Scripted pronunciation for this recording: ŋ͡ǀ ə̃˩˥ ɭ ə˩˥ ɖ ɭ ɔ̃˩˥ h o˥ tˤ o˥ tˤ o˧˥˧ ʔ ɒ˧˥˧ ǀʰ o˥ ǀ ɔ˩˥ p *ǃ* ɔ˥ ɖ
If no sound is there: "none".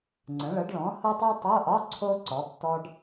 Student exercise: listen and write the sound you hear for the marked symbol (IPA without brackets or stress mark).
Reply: t